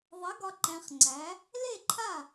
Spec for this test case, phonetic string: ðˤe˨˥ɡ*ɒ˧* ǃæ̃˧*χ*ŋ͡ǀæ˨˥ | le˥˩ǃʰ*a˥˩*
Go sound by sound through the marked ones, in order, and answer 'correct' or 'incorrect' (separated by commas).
correct, correct, correct